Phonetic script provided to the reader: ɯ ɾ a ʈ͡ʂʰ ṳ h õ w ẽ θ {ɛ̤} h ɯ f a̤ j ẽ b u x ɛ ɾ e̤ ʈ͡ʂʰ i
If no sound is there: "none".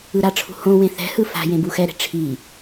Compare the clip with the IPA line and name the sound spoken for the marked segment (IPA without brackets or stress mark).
ɛ̤